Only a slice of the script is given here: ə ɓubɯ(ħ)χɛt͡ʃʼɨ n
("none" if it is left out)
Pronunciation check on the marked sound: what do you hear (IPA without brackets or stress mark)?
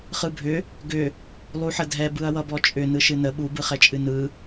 none